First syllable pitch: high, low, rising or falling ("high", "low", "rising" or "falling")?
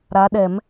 rising